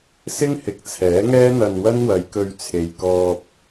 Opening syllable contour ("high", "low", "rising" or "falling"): high